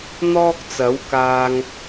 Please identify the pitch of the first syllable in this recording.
high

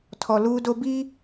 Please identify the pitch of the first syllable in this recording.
low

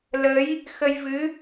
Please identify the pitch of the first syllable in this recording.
rising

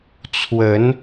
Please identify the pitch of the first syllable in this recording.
rising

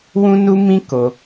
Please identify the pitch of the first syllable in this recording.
high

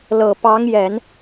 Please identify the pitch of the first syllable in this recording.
low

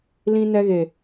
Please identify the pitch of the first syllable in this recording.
high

